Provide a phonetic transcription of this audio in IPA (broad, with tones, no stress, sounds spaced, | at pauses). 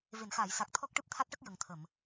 v e˨˩˨ n x aː˨˩˨ j s a˨˩ k̚ t̪ʰ ɔ˦˥ k̚ ʈ ɨ˦˥ p̚ t̪ʰ a˦˥ t̚ ʈ ə˦˥ k̚ j ə˨˩ ŋ t̪ʰ ə˨˩˨ m